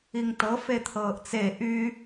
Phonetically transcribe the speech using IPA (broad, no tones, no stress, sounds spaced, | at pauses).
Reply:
i ŋ t ɤ f e t̪ʰ ɤː ʔ t͡s e ʔ y